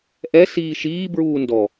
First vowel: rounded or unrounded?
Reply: unrounded